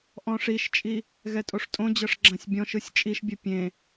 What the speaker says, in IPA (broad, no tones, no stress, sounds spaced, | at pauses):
ʔ ɔ̃ ʂ i ʃ t͡ʃʼ i | ɣ ɛ tʼ o ʂ tʼ õ d͡ʑ ɤ ʂ ɡ͡ǁ ã sʲ bʲ ɔ̃ ʃ ɯ sʲ t͡ʃʼ i ʃ bʲ ɯ pʲ ẽ